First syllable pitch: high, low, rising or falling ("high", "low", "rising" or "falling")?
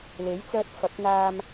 rising